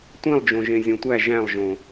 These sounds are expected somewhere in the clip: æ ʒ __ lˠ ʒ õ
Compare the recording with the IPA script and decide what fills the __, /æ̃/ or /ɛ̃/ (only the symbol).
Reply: æ̃